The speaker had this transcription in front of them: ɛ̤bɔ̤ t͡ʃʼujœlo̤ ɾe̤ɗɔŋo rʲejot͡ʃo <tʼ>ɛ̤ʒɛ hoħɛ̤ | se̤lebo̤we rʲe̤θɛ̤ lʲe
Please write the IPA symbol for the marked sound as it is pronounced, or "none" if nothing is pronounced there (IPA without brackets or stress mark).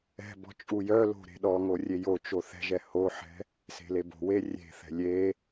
θ